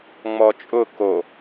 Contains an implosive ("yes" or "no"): no